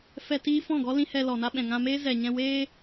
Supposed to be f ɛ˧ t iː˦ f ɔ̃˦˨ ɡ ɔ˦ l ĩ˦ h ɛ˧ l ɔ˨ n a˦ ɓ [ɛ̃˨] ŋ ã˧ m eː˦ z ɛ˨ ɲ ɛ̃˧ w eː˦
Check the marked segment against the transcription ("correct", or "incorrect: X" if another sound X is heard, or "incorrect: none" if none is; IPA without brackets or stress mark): correct